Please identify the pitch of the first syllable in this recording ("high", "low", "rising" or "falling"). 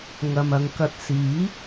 low